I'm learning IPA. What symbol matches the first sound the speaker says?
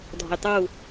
dʱ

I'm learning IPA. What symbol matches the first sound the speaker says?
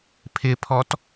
pʰ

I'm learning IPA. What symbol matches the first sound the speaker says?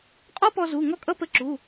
qʼ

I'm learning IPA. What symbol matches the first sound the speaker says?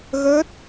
ɣ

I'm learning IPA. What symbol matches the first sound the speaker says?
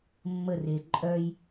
mː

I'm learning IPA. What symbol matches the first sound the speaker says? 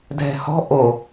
dʱ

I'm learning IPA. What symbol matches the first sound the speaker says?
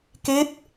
k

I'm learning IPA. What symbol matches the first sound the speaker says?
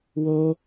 w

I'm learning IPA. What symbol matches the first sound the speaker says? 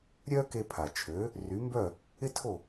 ɾʲ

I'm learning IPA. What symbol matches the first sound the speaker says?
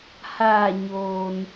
h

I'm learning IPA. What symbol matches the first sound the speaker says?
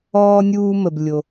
ɔː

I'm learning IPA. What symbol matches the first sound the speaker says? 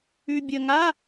ʉ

